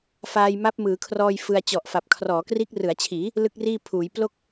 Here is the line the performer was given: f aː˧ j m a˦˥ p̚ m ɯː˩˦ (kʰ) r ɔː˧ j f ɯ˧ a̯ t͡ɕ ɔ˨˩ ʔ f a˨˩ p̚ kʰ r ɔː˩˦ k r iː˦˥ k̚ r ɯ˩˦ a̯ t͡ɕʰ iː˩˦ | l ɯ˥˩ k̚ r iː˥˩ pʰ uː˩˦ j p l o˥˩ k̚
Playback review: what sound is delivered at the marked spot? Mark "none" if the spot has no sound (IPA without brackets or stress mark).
kʰ